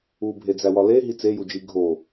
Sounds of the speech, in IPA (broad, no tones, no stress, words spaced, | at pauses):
ubʱed͡zæwɒ leɦi t͡sejud͡ʒi ɡʱo